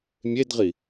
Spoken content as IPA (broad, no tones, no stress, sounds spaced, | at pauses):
mʲ e d ʁ i